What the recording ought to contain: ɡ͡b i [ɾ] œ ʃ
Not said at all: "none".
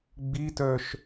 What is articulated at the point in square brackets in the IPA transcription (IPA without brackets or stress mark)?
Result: t